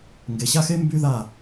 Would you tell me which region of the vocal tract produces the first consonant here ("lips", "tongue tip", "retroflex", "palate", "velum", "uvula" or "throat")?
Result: velum